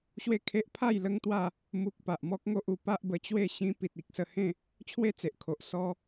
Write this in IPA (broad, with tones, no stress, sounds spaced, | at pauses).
ɕ w e˥˧ kʰ e˦ ʔ pʰ a˥˧ j l ə˦ ŋ t̪ w a˥˧ | m u˦ k̚ p a˨ ʔ m ɔ˦ k̚ ŋ o˦ ʔ u˧ p a˦ ʔ b ə˧ t͡ɕ w e˥˧ ɕ ĩ˦ p i˨ t̚ i˨ k̚ s ə˧ h ẽ˥˧ | t͡ɕʰ w e˥˧ t͡s e˨ ʔ kʰ o˨ ʔ s ɔ˦